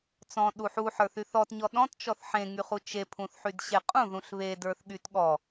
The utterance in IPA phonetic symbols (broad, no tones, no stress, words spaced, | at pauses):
t͡sɔ̃ɗu ħuħə˞θy θɔtɲɔ ɗɔ̃tt͡ʃɔθ ħẽŋyχu t͡ʃepʰũθħydɕe qʼũðũɬ βedə˞θɠyt ɠɔ